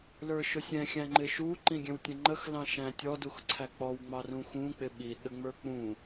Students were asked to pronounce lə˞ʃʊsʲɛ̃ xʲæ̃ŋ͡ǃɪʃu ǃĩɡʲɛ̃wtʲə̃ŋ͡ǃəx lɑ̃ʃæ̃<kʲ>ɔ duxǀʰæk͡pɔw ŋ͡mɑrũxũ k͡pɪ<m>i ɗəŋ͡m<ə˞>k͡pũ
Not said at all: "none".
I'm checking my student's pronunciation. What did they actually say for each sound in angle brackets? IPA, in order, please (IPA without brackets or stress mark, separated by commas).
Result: tʲ, ɓ, ə˞